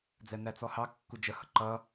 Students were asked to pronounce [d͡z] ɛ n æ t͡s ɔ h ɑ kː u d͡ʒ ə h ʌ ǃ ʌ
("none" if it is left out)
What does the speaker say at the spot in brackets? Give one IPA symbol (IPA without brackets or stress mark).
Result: d͡z